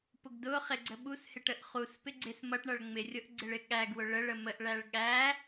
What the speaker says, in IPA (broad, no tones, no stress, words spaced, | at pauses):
pʊɡdʊχɪ ɡ͡ǀəɓushɪʈ əʔχuspɪ ɡ͡ǀɪs mʌʈɳʌɭ ŋ͡mɪrʲʊʔ ɡ͡ǀɪɭɪɠæɡwʊ ɭəɭə məʔɭæɭ ɠæ